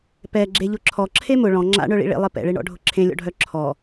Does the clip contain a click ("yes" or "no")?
yes